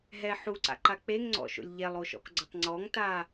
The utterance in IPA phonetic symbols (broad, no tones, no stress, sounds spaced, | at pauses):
ɦ ɛ ħ u ǀ a̰ ǃ a k͡p e ŋ ŋ͡ǀ ɔ̰ ʃ o̰ lʲ ʎ ɛ lˠ o ʃ ɔ̰ k ɡ͡ǀ ʊ tˤ ŋ͡ǀ ɔ ŋ t a